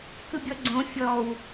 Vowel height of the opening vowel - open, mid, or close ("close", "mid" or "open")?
close